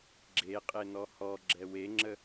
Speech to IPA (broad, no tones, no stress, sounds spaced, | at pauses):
ɡ͡ǁ e qʼ e n ɔ h ɔ ɡ͡ǁ ɛ w e ŋ͡ǁ ə